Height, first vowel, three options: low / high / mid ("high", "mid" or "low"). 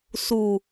high